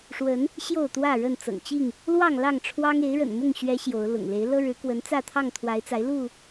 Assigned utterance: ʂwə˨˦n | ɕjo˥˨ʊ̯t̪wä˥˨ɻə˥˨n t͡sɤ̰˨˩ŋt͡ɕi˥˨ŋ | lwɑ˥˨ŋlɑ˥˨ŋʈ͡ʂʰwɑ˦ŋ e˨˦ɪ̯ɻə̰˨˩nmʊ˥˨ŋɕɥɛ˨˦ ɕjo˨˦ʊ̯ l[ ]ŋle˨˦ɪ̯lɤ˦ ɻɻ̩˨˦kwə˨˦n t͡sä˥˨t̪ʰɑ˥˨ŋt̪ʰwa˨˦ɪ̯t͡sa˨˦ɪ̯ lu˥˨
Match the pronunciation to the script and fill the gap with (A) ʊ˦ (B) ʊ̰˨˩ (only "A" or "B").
B